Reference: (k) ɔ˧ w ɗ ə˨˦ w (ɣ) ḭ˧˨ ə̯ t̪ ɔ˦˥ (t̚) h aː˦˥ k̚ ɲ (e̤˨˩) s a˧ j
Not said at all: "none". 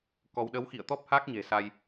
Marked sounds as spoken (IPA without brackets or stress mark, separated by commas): k, x, p̚, e̤˨˩